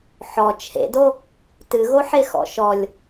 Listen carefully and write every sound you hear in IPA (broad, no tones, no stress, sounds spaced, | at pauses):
ħ ɔ t͡ʃʰ ḛ d o | t ɨ ɣ o ħ e x ɔ̰ ʃ ɔ lʲ